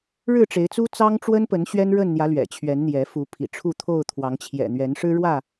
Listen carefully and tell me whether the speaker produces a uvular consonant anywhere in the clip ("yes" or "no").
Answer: no